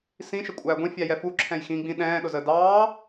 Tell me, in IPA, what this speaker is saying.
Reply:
s ĩ ʃ ə kʷʼ æː ɡʷ ĩ fʲ æ j ɛ f u ǁʰ ɛ̃ j x ĩ ɡ͡b ĩ ɗ ɛ̃ː ɗ ʊ z ə d ɑː

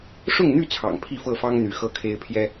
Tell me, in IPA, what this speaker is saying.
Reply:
ʂ ʊ˥˨ ŋ n̪ y˥˨ t͡sʰ ɑ̰˨˩ ŋ pʰ i˥˨ f ɤ˥˨ f ɑ˦ ŋ n̪ y˨˦ x ɤ˦ kʰ e˦ ɪ̯ pʰ j ɛ˦

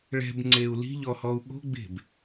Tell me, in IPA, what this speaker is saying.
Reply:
ɭ ɛ̤ b ŋ͡ǀ e u̯ l i̤ ʎ ɔ h ɔ u̯ ɠ o̤ ɡ͡b e̤ b

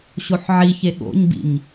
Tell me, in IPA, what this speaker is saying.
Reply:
ɕ o ħ ʕ i ç e ɠ o̰ ɲ b ḭ ɲ

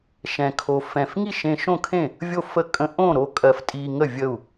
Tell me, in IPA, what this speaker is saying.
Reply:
ʃ ɛ̃˧ kʰ o˧ f ɛ̃˧ f ŋ i˥˨ ʃ ẽ˧ ʃ õ˥˨ kʰ ẽ˥˨ | vʲ o˥˨ f ə˥˨ kʼ ə̃˧ ʔ õ˥˨ ɾ o˥˨ kʼ ɜ˧ f tʼ i˧ ŋ ə˥˨ vʲ ə˥˨ u̯

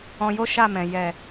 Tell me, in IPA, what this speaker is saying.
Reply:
ɔ̃˧ j o˦ ʃ a˦˨ m ɛ̃˨ j ɛ˨

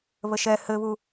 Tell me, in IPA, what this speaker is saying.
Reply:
β ə ʃ ɛ h ɘ β u

